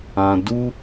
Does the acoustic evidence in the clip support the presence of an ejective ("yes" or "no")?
no